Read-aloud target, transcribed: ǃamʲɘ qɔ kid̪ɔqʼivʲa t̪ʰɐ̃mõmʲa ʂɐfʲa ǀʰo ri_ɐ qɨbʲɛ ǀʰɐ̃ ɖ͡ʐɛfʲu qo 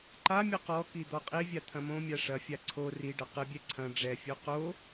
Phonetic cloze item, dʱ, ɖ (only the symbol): ɖ